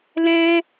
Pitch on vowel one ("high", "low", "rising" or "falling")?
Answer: high